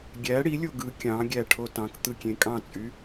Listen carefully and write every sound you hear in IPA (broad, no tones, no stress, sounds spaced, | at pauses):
ɡʲ æ ɽ i lʲ o ɡ ɯ kʲ ɑ̃ ɡʲ æ ʈʰ o t ɑ̃ k t̪ ɯ kʲ ẽ kʼ ɑ̃ t͡sʼ y